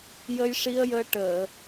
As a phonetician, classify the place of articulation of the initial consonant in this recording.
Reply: palatal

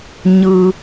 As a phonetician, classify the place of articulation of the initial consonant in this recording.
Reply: palatal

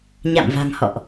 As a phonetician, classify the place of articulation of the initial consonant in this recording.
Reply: palatal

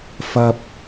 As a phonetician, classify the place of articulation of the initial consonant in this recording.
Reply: labial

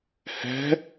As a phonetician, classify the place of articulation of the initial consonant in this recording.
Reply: glottal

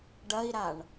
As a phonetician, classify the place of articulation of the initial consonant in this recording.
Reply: retroflex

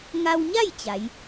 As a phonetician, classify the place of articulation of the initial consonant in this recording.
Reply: velar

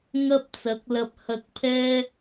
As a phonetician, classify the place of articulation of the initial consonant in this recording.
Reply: velar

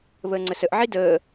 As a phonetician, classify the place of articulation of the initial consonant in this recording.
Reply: labial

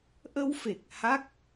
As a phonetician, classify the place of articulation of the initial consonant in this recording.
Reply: glottal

